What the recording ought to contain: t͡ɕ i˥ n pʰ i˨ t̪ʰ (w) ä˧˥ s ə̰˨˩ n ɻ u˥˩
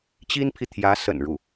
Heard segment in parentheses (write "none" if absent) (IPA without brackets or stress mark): j